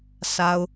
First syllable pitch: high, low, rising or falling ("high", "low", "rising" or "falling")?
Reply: low